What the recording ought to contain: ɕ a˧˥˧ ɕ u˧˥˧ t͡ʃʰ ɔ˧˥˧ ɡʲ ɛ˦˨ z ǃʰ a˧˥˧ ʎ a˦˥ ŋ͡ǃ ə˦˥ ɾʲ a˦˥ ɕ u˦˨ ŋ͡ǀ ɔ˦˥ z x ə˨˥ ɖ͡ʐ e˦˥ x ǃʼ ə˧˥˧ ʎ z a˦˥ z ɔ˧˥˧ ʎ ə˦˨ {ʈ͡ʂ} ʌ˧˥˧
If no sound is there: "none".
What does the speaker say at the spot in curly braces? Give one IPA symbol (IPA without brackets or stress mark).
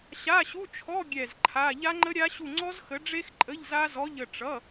ʈ͡ʂ